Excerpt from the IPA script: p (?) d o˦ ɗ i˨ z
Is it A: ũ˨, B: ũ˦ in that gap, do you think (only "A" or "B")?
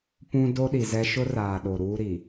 B